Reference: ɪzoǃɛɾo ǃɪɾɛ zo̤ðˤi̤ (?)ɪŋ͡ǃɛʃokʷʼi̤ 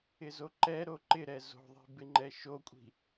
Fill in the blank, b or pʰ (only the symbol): b